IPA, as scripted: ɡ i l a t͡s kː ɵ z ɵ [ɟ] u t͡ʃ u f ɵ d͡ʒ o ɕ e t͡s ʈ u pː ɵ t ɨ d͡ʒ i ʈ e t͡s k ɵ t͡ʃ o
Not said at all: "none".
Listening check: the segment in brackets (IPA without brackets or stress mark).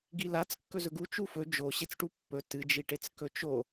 ɡ